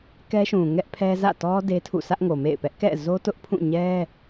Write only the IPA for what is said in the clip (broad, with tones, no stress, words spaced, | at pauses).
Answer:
kɛ˦ʃũ˨ŋɛ˦ʔpʰɛ˦ zä̰˦˨tɔ˦ de˦tʰṵ˦˨ sä˦ʔŋo˨mḛ˦˨ɪ̯ pɛ˦ʔkɛ̰˦˨zo˦tʊ˦ʔ pʰũ˦˨ɲɛ˦